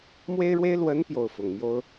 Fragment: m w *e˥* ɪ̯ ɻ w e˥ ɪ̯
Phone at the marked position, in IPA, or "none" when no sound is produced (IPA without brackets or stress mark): e˥